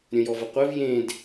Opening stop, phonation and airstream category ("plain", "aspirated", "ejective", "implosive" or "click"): plain